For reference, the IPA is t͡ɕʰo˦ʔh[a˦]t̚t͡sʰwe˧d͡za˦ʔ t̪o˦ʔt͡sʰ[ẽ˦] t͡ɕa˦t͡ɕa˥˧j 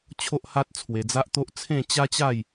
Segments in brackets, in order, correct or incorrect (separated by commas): correct, incorrect